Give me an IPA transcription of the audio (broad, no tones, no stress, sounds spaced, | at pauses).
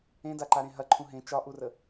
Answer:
ẽ d a ǃ a ɾ ẽ ɦ ɐ ǃʰ ũ ɦ ẽ t͡ʃ ɒ ʔ u r ə